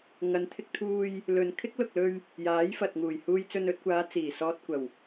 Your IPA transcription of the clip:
ŋ ɐ˨˧ n t̪ʰ ɪ˧ k̚ t̪ʰ uː˧ j | l ɵ˨ n kʰ ɪ˥ k̚ l ʊ˨ k̚ l ɵ˧ ɥ | j aː˨˥ j f ɐ˨ t̚ ŋ uː˨˩ j h uː˧ j t͡s ɵ˧ n ɵ˧ t̚ kʷ aː˨˧ t͡s iː˨˩ s ɔː˧ t̚ kʷ ɐ˨˩ w

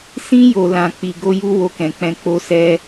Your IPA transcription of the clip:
s ĩ˦ j o˧ l ã˧ k͡p i˨ ɡ o˧ j u˧ w o˧ k ɛ̃˨ k͡p ɛ̃˧ k͡p o˧ s ɛ˧

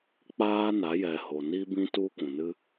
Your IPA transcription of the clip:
k͡p aː˦ n a˨˦ j ɛ˨ h o˨ n i˧ b ĩ˧ t u˦ k ũ˨ n ɨ˦

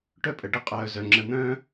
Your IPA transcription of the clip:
ʈ œ˥ pʼ ə˩ ɖ ə˦ qʼ œː˨ z œ˩ ŋ͡ǁ ə˨ n̪ œ̃ː˥

